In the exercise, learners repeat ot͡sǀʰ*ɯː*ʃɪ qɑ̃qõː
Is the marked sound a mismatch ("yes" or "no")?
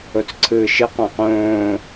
no